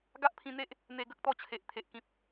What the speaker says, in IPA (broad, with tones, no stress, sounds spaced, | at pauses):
ɡ a˦ ʔ pʰ ĩ˧ n̪ e˦ ʔ | n̪ e˧ ɡ ə˦ k̚ t̪ ɔ˦ t͡ɕʰ e˨ ʔ t̪ʰ e˨ ʔ k ĩ˦ p̚